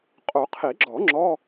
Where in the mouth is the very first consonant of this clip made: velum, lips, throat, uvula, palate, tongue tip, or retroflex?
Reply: uvula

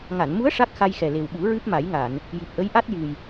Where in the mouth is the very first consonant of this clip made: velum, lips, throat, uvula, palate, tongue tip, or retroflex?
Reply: velum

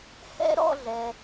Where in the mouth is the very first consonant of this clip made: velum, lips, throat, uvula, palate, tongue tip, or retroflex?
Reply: throat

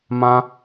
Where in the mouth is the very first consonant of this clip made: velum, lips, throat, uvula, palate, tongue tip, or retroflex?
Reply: lips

